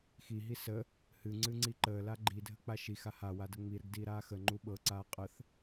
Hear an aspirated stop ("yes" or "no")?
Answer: no